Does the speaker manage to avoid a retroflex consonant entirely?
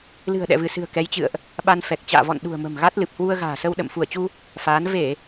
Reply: yes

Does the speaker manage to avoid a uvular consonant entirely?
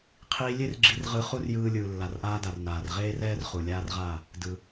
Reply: no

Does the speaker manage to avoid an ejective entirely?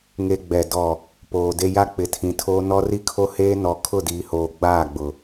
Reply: yes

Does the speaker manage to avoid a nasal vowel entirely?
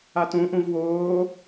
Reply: no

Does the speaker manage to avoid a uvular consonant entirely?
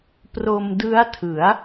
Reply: yes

